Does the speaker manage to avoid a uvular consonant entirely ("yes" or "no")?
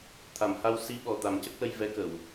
yes